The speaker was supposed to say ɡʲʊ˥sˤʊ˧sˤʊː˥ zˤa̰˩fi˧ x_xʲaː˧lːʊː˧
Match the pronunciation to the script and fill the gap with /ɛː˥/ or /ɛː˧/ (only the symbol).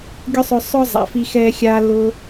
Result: ɛː˧